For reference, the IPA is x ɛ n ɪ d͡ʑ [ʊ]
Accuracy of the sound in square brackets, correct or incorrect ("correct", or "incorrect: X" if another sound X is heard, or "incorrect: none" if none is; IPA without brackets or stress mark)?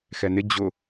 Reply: correct